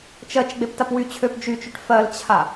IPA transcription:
t͡ʃɜt͡ʃ ɡ͡beptapwy t͡ɕʰøp d͡ʒyt͡ʃyʈ fɜlt͡ɕʰa

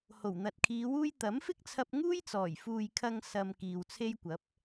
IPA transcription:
ho˨˩wn̪ɐ˨t̚kʰiː˨˧wuː˥j t̪ɐ˨˥mfɪ˥k̚t͡sʰɐ˧p̚ ŋuː˥jt͡sɔː˨˩j fuː˨jkʰɐ˧ŋ sɐ˨m kiː˨wt͡sʰe˥jkʷɐ˨˥p̚

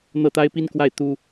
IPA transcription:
n̪ɤ˥˩t̪a˥ɪ̯pi˥nkwa˥˩ɪ̯ t̪u˥

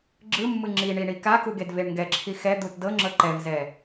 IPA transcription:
ɡ͡ǁɯmːɯ ŋ͡ǁiɳi ɳikaku ɡedveɳŋɡɛǁʰi xɛd̪ut dɤŋ͡ǁɤ ǃɛvzɛ

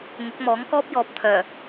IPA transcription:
ŋʊ˨˥k̚mɔː˨˥ŋkɔː˥p̚jɔː˨p̚ t̪ʰœː˨˩

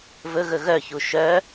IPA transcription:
vɵɣɵ ɣœçu ʃœ

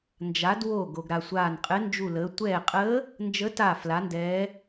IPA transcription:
nd͡ʒa˩˧d wo˧˩ ɡo˩ɡɾa˩sʷaː˧˩nqʼɘ˧˥ nd͡ʒu˧˩ləː˩˧ tʷɛː˧˩qʼəː˧˥ | nd͡ʒə˧˥ taː˧˩fla˩˧ndɛː˩˧

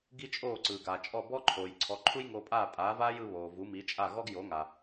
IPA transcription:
ɡi˥t͡ʃʼoː˥˩ ǀɯː˩ɡaː˩t͡ʃʼɔ˥˩ bɔ˥ǃʰoː˩j ǀʰɔ˩˥ǃʰu˥jŋoː˧pʼaː˥˩ pʼaː˩˥vaː˥jɯ˧ βoː˩ vu˩˥mi˩˥t͡ʃʼa˥˩ɣɔ˥ɡ jo˩˥ŋa˩

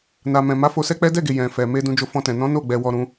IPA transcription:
na˨ mɛ̃˨ma˨˦ fo˧sɛ˦k͡pɛ˦ dɛ˦˨ɡe˨ jɛ̃˨fɛ˨ me˧ dũ˧d͡ʒo˧ fɔ̃˧tɛ̃˨ nɔ̃˨˦ no˦˨ ɡ͡bɛ˨ wɔ˧ɾũ˧

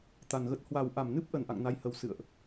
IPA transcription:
t̪a˨˩nɣə˦˥t̚ hwa˨˩wʔa˧˩mnɨ˦˥p̚ ʔə˧˩nʔa̰˧˨ŋna˨˦jhə˨˩w sɨ̰˧˨ə̯ʔ

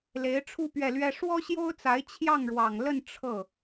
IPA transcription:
le˧˥ɪ̯ʈ͡ʂʰu˥˧ pɥɛ˥˩lɥɛ˥ ʂwɔ˥ɕjo˥ʊ̯t͡sa˧˥ɪ̯ t͡ɕʰjɑ˥˩ŋɻwɑ˨˩ŋlə˥˧n ʈ͡ʂʰɤ˥˩

